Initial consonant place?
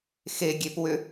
velar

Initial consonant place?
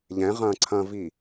palatal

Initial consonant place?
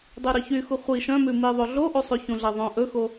alveolar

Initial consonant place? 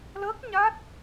alveolar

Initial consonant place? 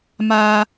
labial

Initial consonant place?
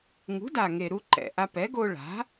velar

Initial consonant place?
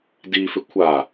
alveolar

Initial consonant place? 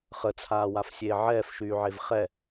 uvular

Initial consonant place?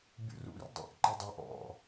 labial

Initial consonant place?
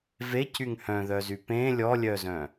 labial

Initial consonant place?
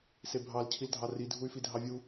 alveolar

